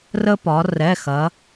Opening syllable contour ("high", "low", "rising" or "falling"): high